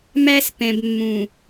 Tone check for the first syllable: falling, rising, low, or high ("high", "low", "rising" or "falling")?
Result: high